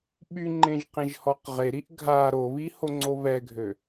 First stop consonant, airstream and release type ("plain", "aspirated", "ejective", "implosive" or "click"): implosive